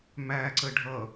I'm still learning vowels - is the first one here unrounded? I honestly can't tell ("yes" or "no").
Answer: yes